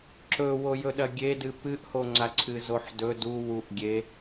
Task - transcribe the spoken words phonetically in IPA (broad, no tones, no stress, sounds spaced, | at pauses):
ǁ ɵ w o j ɵ ɗ ɐ ɡʲ e d ɨ p ɨ ʔ h o ŋ͡ǀ a ǀʰ ɨ z o ħ d ɵ d u w u ʔ ɡʲ e